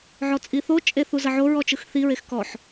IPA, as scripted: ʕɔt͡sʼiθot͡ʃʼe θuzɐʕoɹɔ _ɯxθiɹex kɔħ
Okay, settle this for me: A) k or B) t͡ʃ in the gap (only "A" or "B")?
B